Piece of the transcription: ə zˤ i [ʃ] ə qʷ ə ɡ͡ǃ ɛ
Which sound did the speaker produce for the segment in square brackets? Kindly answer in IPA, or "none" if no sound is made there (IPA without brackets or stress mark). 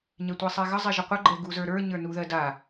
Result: ʒ